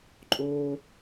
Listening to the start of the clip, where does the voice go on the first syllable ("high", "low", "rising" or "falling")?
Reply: high